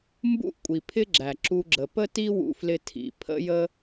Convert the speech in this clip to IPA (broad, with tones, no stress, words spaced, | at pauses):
mbṵ˥ʔkʷʼi˩pʰɪ˥ɡ͡ǁæ˩ ǁu˧ɡ͡ǁə˩ pə˥ti˥ wṵ˧flɪ˧ tʰḭ˩ pʰə̰˥ jə˥